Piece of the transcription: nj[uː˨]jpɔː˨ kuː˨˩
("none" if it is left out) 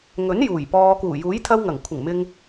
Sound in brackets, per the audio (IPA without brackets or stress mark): uː˨˩